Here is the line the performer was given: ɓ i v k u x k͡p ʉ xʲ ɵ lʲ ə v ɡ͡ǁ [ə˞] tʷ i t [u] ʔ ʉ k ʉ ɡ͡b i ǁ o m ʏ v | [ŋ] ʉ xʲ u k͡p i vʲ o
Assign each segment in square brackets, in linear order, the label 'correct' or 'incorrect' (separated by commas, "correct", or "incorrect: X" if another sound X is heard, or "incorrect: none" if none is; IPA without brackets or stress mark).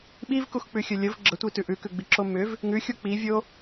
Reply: incorrect: ə, incorrect: ʉ, correct